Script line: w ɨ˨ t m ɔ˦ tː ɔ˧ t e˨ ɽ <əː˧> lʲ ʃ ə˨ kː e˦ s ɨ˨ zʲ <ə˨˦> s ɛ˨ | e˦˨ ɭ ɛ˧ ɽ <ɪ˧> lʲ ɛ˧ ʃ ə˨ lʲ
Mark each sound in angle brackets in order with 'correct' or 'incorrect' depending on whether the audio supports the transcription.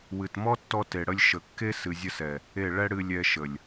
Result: incorrect: ə˧, incorrect: ə˧, incorrect: ɨ˧

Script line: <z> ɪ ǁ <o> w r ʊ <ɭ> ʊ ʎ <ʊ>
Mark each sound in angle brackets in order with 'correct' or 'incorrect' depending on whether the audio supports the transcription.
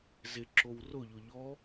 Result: correct, correct, incorrect: ʎ, incorrect: ɔ

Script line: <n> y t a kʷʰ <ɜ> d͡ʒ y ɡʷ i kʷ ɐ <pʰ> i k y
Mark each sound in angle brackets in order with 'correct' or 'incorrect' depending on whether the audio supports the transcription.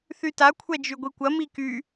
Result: incorrect: θ, incorrect: ɛ, incorrect: m

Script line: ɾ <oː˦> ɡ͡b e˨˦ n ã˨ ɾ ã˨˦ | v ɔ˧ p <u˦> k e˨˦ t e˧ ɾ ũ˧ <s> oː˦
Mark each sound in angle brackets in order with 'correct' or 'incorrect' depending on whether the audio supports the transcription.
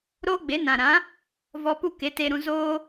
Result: correct, correct, incorrect: z

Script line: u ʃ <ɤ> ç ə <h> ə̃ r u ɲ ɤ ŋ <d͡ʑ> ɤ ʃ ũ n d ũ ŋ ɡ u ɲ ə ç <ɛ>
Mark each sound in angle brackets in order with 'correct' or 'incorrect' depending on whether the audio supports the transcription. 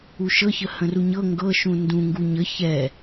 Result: correct, correct, incorrect: ɡ, correct

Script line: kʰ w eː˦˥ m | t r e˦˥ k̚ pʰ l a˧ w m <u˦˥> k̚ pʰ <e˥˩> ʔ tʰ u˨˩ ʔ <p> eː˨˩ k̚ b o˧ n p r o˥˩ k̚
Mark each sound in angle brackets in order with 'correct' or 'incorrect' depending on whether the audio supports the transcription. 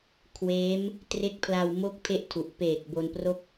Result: incorrect: o˦˥, correct, correct

